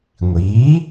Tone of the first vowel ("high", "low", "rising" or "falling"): rising